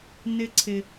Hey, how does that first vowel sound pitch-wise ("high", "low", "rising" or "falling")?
high